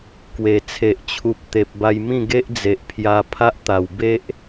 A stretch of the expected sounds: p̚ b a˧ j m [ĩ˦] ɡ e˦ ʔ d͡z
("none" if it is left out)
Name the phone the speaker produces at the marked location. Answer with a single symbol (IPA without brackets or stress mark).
ĩ˥˧